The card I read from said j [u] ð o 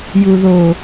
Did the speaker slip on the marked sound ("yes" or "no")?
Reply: no